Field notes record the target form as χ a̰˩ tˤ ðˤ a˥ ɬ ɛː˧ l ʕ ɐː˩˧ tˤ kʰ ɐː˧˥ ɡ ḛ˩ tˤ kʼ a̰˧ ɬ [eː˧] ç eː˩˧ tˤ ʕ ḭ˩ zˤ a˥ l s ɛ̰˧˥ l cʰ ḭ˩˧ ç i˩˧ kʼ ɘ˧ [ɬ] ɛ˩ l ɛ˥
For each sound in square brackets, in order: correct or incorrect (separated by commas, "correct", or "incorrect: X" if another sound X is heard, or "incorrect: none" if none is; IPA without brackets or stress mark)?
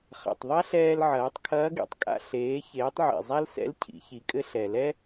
incorrect: eː˩˧, correct